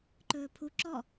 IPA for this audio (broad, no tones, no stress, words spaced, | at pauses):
ǃɵːpʰu ǁɔ